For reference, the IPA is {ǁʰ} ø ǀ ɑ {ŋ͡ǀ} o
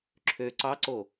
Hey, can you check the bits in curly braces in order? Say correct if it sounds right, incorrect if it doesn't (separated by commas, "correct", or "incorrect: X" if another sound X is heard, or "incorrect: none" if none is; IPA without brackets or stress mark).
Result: correct, incorrect: ǀ